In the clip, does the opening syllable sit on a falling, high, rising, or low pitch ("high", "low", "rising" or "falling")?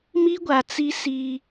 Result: high